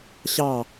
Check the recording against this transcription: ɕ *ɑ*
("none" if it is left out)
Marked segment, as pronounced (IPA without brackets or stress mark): ɑ